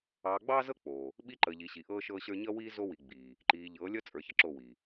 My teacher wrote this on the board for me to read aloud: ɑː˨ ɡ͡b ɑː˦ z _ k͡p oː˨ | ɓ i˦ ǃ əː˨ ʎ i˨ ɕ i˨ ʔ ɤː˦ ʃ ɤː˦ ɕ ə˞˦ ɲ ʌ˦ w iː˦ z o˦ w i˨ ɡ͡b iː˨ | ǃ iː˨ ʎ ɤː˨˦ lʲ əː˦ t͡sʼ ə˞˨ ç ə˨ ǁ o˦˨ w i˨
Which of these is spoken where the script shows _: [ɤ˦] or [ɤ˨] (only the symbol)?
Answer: ɤ˦